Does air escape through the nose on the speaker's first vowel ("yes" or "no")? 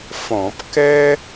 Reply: yes